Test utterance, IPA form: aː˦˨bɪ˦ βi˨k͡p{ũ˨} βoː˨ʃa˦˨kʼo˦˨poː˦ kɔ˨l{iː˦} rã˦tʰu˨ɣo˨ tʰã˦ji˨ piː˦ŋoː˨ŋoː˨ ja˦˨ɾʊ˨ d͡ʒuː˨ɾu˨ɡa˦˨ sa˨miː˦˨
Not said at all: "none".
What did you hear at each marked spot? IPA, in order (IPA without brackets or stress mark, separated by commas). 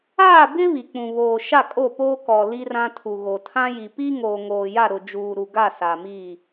ũ˨, i˦